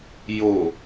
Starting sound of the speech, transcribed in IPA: j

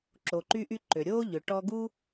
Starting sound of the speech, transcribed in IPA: ǁ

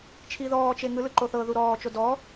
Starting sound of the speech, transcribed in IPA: t͡ʃʰ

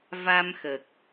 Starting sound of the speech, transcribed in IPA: v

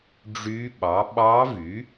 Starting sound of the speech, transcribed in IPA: ɖ͡ʐ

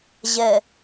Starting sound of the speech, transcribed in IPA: ʑ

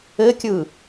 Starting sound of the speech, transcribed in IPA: ɘ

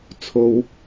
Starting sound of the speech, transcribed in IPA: t͡sʰ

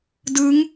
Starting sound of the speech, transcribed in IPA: d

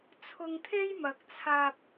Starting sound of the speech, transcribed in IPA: t͡sʰ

